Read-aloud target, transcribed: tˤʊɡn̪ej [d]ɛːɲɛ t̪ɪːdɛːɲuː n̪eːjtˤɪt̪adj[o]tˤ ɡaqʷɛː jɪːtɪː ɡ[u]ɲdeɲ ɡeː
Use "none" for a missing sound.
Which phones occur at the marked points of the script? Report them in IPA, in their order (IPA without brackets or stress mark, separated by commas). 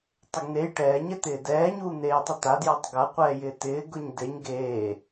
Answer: ʈ, o, ʊ